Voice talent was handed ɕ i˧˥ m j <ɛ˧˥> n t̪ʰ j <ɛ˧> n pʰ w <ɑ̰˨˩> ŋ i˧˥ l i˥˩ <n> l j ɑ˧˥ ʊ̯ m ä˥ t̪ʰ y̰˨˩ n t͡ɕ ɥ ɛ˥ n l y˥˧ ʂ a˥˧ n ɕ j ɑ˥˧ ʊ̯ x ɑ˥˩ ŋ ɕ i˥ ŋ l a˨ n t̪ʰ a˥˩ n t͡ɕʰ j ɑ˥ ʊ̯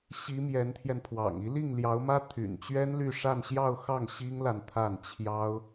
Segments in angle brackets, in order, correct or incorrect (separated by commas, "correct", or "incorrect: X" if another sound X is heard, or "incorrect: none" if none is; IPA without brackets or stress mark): correct, correct, correct, incorrect: ŋ